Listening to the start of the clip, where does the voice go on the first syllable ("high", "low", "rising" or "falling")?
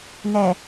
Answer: low